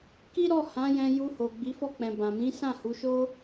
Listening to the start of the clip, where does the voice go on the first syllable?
high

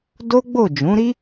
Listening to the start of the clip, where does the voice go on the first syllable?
high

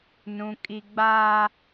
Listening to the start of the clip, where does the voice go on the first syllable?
high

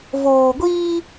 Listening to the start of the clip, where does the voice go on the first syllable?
low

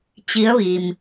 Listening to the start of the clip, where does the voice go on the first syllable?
rising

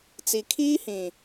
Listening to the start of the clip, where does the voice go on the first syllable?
low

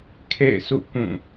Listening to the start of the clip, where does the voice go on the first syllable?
falling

